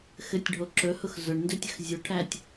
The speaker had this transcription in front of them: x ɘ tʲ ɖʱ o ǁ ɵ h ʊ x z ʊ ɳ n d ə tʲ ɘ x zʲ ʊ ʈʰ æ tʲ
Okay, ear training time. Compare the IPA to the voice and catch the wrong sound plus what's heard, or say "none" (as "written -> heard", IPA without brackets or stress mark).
ə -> ɵ